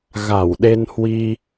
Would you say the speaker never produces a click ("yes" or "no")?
yes